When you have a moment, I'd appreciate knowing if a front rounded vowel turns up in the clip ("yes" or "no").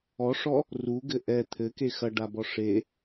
no